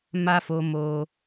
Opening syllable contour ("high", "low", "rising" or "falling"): high